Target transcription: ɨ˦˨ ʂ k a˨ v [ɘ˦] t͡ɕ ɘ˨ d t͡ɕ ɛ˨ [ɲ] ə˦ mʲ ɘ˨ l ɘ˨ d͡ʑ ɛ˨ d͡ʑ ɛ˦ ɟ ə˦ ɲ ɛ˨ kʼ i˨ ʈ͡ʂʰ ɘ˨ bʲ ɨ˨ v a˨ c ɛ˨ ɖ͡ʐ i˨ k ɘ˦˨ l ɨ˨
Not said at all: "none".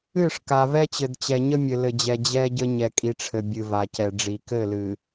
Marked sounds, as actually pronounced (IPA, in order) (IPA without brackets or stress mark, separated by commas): ɛ˦, ɲ